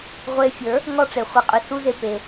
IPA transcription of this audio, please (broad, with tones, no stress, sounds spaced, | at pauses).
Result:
ʁʷ e˧ fʲ ə˞˨˦ | ŋ ɔ˧ ʈ͡ʂ e˨ χʷ e˨ qʼ y˨ s u˧ z e˧ p e˧